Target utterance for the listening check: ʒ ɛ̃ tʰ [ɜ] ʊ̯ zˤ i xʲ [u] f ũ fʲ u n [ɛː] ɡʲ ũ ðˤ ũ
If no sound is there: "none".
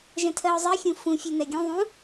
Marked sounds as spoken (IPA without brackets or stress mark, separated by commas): ɜ, ũ, ɛ